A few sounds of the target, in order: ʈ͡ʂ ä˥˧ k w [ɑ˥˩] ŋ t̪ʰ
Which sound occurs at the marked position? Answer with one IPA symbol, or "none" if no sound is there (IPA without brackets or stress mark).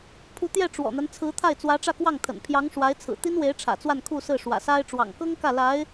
ɑ˥˩